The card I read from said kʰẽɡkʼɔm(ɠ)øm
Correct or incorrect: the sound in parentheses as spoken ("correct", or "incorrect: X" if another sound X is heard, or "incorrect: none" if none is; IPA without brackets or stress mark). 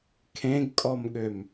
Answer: correct